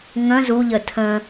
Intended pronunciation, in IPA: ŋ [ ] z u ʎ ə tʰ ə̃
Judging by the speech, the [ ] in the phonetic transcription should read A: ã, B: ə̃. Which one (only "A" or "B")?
B